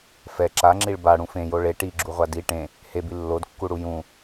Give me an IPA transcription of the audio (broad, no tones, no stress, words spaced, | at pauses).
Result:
fɛ ǁaŋ͡ǁiɭ baɽũ fẽjo ɭe ʈiɡ͡ǁuʁʷa di ʈẽ | hebi lːodkːuɽu jũ